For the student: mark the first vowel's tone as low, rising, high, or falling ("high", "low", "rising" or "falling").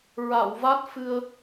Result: low